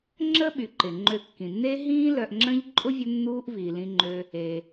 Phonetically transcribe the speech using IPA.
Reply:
ŋ͡ǁ ə˥ ɓ y˩ ǃ ɪ˩ ŋ͡ǃ ø˨ kː ĩ˩ nː e˦ ɦ ĩː˦ l œ˨ ʔ ŋ͡ǁ ə̃˦ ʎ ǃʼ ʊ˥ vʲ ʊ˦ nː uː˦ ʔ v iː˩ l ĩ˨ ŋ͡ǃ ø˨ | e˩

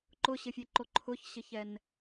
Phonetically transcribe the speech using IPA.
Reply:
ǃ ʊ ɕ ɪ fʲ e ǃ o ǃʰ ʊ ç ɕ ɪ ç ɛ n

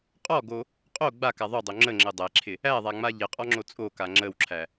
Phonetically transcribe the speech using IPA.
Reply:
qʼ ɔ ɡ o | qʼ o ɡ͡b a k a ðˤ o dˤ o ŋ͡ǁ ə ŋ͡ǁ ə dˤ æ ǁʰ ɪ | æ ðˤ a ŋ͡m a ʎ ɪ qʼ ɔ ŋ͡ǁ o t͡sʼ o k a ŋ͡ǁ ə w ǁʰ æ

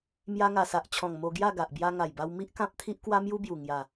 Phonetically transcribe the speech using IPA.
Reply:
m j a˧ ŋ a˨˩ s a˨ ʔ t͡ɕʰ ɔ̃˨˩ ŋ m o˧ ɡ j a˥˧ ɡ a˨ ʔ b j a˧ ŋ a˨˩ j b a˧ w m i˦ ʔ k ã˦ p̚ t̪ʰ i˦ ʔ k w a˦ m j u˦ b j u˨˩ ŋ j a˨˩

